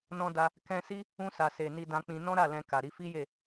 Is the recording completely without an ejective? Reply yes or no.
yes